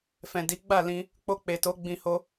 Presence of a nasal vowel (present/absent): present